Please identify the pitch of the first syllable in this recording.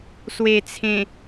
low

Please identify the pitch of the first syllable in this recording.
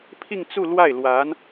falling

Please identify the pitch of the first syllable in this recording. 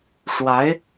rising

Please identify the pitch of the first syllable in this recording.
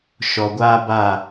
low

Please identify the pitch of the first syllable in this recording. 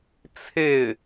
falling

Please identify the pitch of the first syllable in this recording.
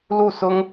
falling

